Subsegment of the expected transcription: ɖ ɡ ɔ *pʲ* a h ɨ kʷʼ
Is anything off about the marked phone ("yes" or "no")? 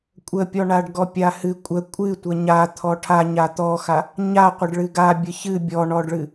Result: no